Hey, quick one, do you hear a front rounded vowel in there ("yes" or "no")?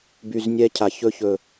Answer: yes